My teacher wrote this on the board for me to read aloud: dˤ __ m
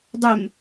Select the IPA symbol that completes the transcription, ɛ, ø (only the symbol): ø